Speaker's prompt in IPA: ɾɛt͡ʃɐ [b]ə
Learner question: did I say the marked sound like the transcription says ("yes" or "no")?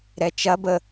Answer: yes